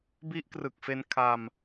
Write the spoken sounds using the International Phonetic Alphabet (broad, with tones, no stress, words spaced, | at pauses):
bi˦˥ʔkrɯ˨˩k̚fe˧n kʰa˧m